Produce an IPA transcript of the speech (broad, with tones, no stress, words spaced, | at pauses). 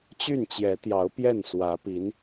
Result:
t͡ɕy˥˩nt͡ɕjɛ˧˥t̪jɑ˧˥ʊ̯ pjɛ˥˩n swä˧˥pi˧˥n